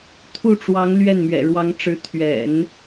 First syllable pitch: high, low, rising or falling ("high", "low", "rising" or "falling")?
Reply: falling